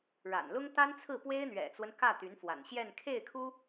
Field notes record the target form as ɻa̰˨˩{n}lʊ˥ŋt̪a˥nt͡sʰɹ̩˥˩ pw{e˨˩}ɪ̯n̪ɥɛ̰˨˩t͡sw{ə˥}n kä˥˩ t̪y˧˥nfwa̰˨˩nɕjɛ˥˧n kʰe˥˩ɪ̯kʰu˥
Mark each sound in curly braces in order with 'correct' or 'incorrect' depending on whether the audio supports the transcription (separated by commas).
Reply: correct, incorrect, incorrect